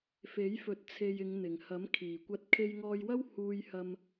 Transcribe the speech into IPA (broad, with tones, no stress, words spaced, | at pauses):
fe˨˥jfɵ˨˥t̚t͡sʰe˨j ɪ˨˧ŋn̪ɪ˨˩ŋhɐ˨˥m kʰiː˨˩kʷɐ˧t̚ kʰe˧jŋɔː˧jwɐ˥w huː˧jhɐ˧m